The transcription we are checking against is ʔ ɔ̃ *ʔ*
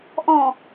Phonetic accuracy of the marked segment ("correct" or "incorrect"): incorrect